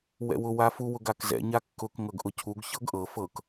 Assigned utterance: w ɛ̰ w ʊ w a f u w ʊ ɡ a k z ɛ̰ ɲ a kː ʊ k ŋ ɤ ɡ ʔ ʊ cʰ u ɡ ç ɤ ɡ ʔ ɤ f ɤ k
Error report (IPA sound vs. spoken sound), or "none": none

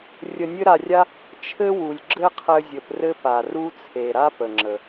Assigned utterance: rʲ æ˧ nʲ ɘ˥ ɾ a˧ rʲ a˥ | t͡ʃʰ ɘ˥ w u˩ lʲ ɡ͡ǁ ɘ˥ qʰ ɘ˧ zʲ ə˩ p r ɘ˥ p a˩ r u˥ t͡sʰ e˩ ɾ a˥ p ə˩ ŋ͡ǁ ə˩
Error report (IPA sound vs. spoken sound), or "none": æ˧ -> ə˧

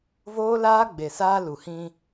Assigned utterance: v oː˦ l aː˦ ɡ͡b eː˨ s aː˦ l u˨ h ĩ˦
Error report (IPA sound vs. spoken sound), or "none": eː˨ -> e˨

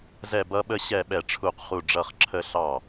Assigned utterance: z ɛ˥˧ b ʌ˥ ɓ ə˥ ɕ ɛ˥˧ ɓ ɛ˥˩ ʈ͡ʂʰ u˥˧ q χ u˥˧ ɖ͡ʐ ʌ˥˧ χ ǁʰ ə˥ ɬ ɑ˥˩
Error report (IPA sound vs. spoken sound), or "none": none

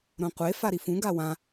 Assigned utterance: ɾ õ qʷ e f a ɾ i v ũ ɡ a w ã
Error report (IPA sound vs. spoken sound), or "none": v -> f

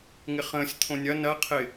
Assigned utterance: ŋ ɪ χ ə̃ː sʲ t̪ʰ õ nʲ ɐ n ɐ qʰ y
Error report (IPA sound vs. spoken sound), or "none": y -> ɪ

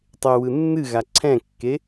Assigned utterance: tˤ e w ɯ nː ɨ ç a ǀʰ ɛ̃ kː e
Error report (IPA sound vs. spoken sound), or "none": ç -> ɣ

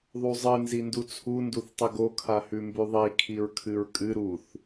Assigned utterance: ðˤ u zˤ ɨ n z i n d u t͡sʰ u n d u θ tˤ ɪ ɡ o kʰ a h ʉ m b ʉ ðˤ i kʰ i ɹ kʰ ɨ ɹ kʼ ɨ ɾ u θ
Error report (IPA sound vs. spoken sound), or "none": ɪ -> ɨ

